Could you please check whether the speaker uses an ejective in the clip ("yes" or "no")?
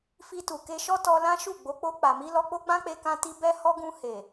no